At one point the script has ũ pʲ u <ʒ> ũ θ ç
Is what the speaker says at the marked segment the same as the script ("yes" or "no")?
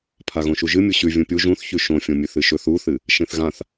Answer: yes